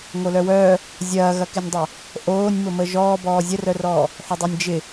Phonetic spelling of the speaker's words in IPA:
ŋ o l œ w œː | zʲ ɐː ɣ ɐ k ɪ nʲ dˤ ɐ | ʔ oː nʲ m ʊ m ə ʒ ɔː b ɔː zʲ ə r œ r ɔː | ħ ʏ dˤ ɛ nʲ d͡ʒ ɪ

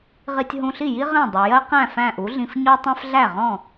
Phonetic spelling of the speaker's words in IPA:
ʁ i˧ tʲ ɦ ũ˧ ɬ i˥˩ j i˥ ʁ ɛ̃˥˩ dˤ i˩ j ɜ˥ q æ̃˥˩ f æ̃˥˩ ʔ u˩˥ ɮ ĩ˧ f ɲ ɔ˥ tˤ ɛ̃˥ f ɮ æ˥˩ ʁ ɔ̃˥˩

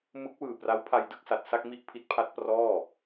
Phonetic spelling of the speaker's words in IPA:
m ɯ˦˥ k̚ w ɯː˨˩ p r a˦˥ w pʰ a˧ j d ɯ˥˩ k̚ s a˨˩ t̚ s a˥˩ k̚ m i˥˩ ʔ pʰ i˦˥ t̚ pʰ a˦˥ t̚ p r ɔː˥˩

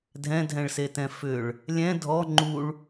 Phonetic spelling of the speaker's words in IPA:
dʱ ɛ̃ dʱ ɛ̃ ɭ s e t ɛ̃ f ʏ ɭ | lʲ ɛ̃ dʱ ɔ ŋ͡ǃ u ɭ

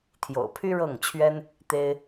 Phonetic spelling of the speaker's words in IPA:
t̪ʰ j o̰˨˩ ʊ̯ pʰ y˥ ɻ ɤ˥˩ ŋ t͡ɕʰ ɥ ɛ˥ n | t̪ e˥ ɪ̯

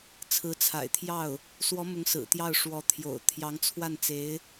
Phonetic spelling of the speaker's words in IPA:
t͡sʰ ɹ̩˧˥ t͡sʰ a̰˨˩ ɪ̯ t̪ʰ j ɑ˥˩ ʊ̯ | s w ɔ˧˥ m ʊ˧˥ ŋ s ɹ̩˨˩ t̪ j ɑ˥˩ ʊ̯ ʂ w ɔ˧˥ t̪ʰ j o̰˨˩ ʊ̯ t̪ʰ j ɑ˧˥ ŋ t͡sʰ w a˥˩ n t͡s e˧˥ ɪ̯

